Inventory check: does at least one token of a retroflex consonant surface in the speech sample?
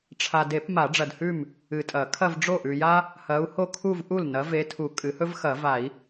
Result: yes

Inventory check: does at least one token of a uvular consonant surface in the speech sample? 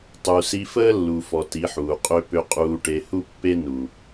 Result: yes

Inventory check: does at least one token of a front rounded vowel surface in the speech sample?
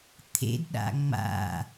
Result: no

